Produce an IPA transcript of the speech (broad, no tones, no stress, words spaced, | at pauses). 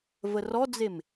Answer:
vərɔd͡zem